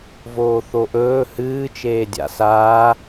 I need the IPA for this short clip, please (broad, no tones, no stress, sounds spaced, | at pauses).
v oː θ o ʔ ɵː h ɨː t͡ʃ eː dʲ a̰ s aː